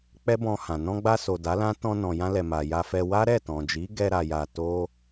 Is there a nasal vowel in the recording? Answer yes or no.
yes